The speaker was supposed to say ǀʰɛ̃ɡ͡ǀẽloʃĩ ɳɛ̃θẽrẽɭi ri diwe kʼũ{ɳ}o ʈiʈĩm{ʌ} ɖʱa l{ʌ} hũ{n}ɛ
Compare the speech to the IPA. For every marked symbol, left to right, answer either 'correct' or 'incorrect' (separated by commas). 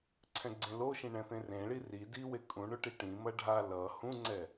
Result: correct, correct, correct, incorrect